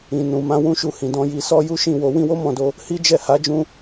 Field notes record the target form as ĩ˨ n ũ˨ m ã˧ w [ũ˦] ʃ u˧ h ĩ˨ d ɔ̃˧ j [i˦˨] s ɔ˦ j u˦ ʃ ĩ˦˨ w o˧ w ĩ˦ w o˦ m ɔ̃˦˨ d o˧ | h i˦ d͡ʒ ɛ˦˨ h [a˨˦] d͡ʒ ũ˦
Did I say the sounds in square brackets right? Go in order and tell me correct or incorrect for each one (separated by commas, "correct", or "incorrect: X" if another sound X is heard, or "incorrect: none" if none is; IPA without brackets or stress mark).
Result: correct, incorrect: i˧, correct